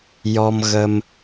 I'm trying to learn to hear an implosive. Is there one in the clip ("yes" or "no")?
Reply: no